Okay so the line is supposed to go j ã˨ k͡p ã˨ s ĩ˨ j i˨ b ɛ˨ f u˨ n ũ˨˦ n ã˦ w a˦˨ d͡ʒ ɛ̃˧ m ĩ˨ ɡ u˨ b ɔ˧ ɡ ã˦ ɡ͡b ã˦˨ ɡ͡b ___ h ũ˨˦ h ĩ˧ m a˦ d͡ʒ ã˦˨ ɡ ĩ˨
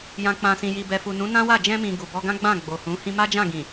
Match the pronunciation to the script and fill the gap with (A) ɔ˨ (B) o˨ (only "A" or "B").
B